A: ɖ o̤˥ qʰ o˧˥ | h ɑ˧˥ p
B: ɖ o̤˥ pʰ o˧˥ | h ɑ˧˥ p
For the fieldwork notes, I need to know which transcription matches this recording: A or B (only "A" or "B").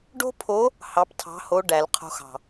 B